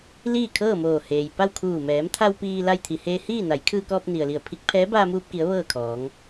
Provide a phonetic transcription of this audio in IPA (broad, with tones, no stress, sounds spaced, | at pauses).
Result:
l iː˥˨ kʰ ɤː˥˨ m oː˧˩ h eː˩ j p a˥˨ w kʰ uː˧˩ m ɛː˩˧ m t̪ʰ a˧ w p iː˧ l a˧ j t̪ʰ i˩ h eː˧ h iː˥˨ n a˩˧ j kʰ ɯː˧ k ɔː˧ p̚ n i˩ ə̯ l i˧˩ ə̯ pʰ i˧˥ k̚ pʰ ɛː˧˥ b aː˧ m uː˧ p̚ k i˩˧ ə̯ ʋ ɤː˥˨ kʰ ɔː˩˧ ŋ